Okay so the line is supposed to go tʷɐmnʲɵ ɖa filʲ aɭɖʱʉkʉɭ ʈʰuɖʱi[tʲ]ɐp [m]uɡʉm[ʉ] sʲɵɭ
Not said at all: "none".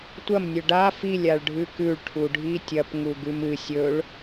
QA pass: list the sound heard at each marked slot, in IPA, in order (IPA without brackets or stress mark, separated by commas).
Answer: tʲ, ŋ, ɨ